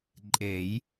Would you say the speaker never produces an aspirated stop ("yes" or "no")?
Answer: yes